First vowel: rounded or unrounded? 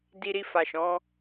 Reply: unrounded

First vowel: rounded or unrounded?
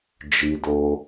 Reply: unrounded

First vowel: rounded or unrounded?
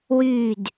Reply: rounded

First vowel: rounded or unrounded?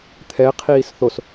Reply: unrounded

